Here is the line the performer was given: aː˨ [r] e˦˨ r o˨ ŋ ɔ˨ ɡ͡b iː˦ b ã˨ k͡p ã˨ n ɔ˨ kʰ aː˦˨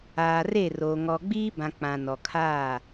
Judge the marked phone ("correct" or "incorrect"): correct